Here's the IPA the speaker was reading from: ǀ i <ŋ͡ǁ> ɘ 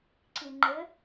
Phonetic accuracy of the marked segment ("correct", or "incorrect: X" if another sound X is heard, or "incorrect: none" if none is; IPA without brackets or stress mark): incorrect: ŋ͡ǃ